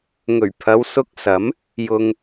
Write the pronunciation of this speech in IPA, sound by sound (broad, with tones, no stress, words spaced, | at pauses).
ŋɵ˨˩ɥpʰɐ˨˧wsʊ˧k̚ sɐ˨˥m | jʊ˧ŋ